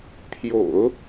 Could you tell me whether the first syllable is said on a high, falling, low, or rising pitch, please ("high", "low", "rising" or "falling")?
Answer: low